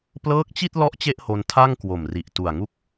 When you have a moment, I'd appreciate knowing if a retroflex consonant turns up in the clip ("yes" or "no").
no